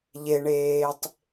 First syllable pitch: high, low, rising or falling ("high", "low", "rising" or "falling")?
low